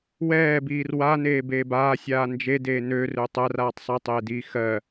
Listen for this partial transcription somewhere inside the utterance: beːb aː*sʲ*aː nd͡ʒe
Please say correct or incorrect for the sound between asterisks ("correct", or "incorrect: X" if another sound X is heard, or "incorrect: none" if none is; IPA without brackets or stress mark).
correct